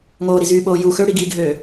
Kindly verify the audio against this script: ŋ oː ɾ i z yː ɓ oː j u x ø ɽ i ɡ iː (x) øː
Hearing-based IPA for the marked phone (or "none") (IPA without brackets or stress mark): ɡʱ